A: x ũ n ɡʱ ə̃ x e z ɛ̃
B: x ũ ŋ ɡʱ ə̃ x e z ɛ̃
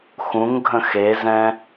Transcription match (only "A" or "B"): B